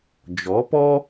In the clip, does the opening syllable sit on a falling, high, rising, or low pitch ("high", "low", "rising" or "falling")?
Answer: rising